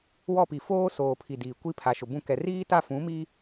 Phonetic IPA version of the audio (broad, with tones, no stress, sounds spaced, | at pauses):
w ɔ˦˨ p i˨ f oː˦ s oː˨ pʰ i˨ d iː˨ kʷ i˦ pʰ a˨ ʃ ʊ˨ b ũ˦˨ k ɛ˨ r iː˦ t a˦˨ f ũ˨˦ m iː˦